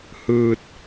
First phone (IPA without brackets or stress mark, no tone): h